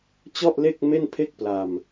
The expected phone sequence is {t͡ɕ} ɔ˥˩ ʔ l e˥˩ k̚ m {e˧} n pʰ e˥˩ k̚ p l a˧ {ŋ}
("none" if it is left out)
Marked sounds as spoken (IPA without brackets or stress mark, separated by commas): t͡ɕ, e˥˩, m